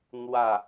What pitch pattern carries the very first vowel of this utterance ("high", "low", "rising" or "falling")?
falling